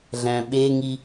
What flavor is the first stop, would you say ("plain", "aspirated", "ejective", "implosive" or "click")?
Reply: implosive